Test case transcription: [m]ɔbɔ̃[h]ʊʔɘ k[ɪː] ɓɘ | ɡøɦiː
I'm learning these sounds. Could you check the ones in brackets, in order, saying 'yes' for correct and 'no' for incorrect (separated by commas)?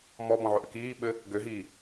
yes, no, no